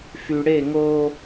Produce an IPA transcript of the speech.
f y˨ ɽ e˦˨ ŋ o˦

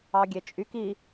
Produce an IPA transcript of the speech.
ɑ ɡʲ e t͡ʃʼ y k i

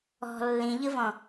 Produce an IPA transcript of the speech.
ɔ̤ lː ĩ ʎ ɯ v ɔ̃

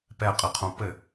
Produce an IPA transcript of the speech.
p ɛ qʼ ɘ qʰ õ p ɘ

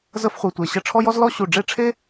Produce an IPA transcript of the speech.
z ə˥ f χʷ e˧ tʷ e˧ ɕ ə˥˨ ʈ͡ʂʰ ɔ˥ j ɔ˥ z l ɔ˥ ɕ u˥˨ ɖ͡ʐ e˥˨ ʈ͡ʂʰ e˥

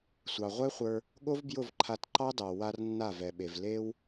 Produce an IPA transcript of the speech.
sʷ ɑ˨ ʁʷ ɛ˦ χʷ ə˞˧ | ɠ o˦ v b j ʊ˦˨ v ǃʰ a˧ t ǃ ɑ˦ d ɑ˨ w a˧ r nː a˦˨ v ɛ˨ ɓ e˨ v l e˦ w

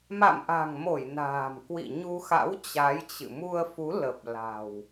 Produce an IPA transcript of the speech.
m a̰˧˨ m ʔ a̤˨˩ ŋ m o˧˩ j n a̤ː˨˩ m k w ḭ˧˨ ɲ u˧ x a̰˧˥ w t͡ɕ a˨˦ j t͡ɕ ɨ̰˧˨ m u˧ ə̯ f u˨˦ l ə˨˩ p̚ l a̤˨˩ w

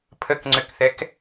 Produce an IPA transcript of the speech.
pʰ ə k ŋ͡ǀ ʏ k θ ɛ k

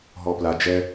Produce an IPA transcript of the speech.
ɦ ɔ p l a d͡ʒ ɛ

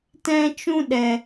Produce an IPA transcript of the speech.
t ɛ̃˦ t͡ʃ ũ˦ ɗ ɛ˨

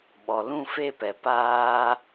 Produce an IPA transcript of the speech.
ɓ ɔ˨ l ũ˦˨ f e˦˨ p ɛ˨ p aː˦

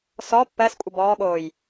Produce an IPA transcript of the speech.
s ɔ pː ɜ s kʷʼ ə b ɔː ɠ oː j

